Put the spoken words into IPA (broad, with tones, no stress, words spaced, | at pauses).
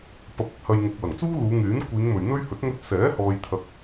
pɐ˨˥p̚ɪ˧k̚hɐ˨j ŋʊ˨k̚wɐ˨˩ŋt͡suː˥ luː˨˧ŋyː˨˥n kʷiː˨˧ŋ mɵ˨ɥn̪ɵ˥ɥ hɵ˨˥t̚ŋɵ˧t̚sɛː˨˥ hɔː˥jt̪ʰɐ˥k̚